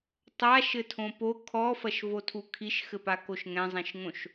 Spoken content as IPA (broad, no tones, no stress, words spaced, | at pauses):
tˤaʃɘ tʰõpo kʰɔfɐʃvo tʰukʰiʃxɘpa koʃŋɛ̃zˤɛ̃ʃŋõʃ